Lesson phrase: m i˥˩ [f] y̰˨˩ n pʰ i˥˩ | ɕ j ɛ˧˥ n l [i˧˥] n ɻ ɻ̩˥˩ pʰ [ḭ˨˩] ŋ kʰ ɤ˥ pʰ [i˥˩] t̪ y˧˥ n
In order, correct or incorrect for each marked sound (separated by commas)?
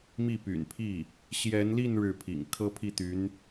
incorrect, incorrect, correct, correct